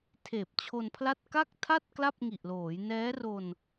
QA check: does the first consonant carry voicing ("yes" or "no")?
no